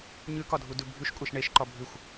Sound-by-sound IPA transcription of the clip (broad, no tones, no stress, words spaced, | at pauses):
ɲʉkɒdʱudʉ bʱʉʃkʷʼɛʃ ɳeʃǃɒ bʱʉxʷ